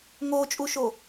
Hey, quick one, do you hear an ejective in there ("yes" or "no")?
yes